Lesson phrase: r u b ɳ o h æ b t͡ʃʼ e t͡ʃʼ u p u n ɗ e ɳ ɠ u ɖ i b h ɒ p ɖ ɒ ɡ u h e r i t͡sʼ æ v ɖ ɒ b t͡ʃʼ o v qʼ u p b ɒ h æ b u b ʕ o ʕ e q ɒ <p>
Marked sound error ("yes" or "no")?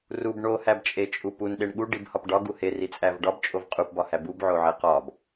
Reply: yes